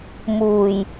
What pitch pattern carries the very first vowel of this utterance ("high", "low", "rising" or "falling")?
low